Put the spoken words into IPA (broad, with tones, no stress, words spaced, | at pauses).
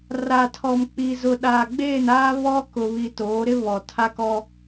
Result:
ra˨tʰɔ˨mk͡pi˨zʊ˨ ɗaː˨ɡ͡beː˦˨naː˦ βɔ˦ kʊ˨βi˨ toː˨˦ɾɪ˦ βɔ˨tʰa˦kɔ˦